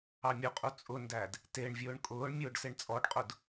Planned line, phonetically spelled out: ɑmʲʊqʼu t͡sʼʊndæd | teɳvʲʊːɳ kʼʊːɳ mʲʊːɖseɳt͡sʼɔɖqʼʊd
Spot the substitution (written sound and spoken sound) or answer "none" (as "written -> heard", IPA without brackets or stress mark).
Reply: none